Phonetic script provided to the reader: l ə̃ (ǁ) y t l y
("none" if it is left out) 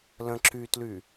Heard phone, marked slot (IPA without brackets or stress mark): ǁ